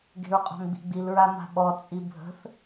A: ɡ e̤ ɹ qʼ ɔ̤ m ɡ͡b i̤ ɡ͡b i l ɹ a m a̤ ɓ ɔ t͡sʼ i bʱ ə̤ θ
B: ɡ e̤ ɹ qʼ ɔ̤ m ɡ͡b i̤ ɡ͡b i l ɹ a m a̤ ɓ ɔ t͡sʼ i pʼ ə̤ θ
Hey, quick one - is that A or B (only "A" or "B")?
A